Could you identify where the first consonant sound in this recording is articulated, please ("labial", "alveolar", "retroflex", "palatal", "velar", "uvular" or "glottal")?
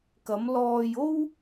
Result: velar